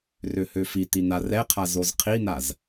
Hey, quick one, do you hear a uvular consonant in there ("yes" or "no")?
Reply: yes